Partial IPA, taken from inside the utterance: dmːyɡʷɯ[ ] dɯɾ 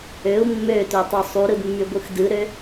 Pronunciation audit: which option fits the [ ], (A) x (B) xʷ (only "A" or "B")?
A